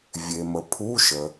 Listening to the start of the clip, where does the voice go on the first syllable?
low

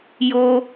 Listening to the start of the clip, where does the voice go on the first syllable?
high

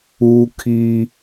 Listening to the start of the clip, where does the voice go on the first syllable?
high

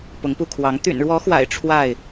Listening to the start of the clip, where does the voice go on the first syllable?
rising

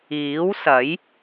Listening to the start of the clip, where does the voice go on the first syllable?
rising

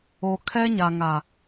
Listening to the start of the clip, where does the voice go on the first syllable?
low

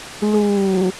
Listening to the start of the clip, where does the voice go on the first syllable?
low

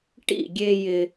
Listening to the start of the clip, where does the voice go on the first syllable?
falling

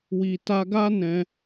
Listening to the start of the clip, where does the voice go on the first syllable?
low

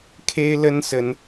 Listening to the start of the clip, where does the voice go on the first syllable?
high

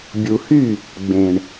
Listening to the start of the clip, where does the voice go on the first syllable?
low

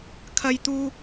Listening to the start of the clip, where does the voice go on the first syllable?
high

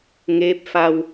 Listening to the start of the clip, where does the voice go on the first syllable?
rising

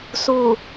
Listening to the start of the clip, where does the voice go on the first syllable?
low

